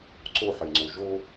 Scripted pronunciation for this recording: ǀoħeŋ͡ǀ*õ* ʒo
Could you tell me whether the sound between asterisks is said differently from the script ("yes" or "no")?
yes